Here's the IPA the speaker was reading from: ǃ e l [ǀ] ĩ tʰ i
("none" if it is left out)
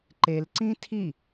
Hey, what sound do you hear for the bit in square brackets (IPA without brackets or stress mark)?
ǀ